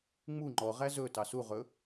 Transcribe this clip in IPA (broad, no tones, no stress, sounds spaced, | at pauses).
ŋ͡m u ŋ͡ǃ ɔ ʁ æ z ɵ t ɑ s u ʁ ɵ